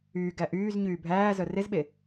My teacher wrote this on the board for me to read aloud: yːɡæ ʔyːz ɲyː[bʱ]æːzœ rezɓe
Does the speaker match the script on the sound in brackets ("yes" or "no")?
yes